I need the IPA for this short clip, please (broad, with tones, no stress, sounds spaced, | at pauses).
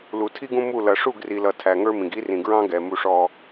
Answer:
l u˨ tʰ i˦ ɡ ũ˦ m u˦˨ l ʌ˨ ʂ u˦˨ ɡ r i˨ l ʌ˨ tʰ æ˨ ŋ ə˞˦ m ĩ˨ ɡ i˦ r ĩ˨ ɡ ɹ ɑ̃˦ ɡ ɛ˨ m u˦ ʂ ɔ˦